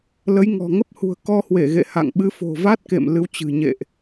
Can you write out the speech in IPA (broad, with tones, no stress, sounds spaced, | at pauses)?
l ə˨˦ j ŋ ɔ̤˨˩ ŋ ə˦˥ p̚ h ṳ˨˩ ə̯ k ɔ˧ h w e˧˩ ɣ ḛ˧˨ h a̰˧˨ ŋ ɓ ɨ˨˦ f o̤˨˩ v a˦˥ t̚ k ḛ˧˨ m l ɨ˨˦ w t͡ɕ ɨ̤˨˩ ɲ ḛ˧˨ ʔ